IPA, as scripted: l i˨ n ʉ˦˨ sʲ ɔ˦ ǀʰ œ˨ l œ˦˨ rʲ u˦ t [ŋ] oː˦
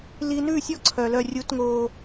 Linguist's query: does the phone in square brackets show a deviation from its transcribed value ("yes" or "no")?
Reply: no